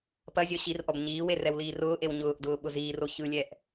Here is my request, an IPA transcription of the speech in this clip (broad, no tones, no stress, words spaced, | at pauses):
pɐzʲɔ ɕirʔɔb ɲiːwe rɛwliːrʊːʔew ɲʊːʔdʊː ɓʊziːro çɯlʲɛʔ